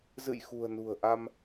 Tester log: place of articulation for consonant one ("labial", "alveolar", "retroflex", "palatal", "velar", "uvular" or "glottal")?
alveolar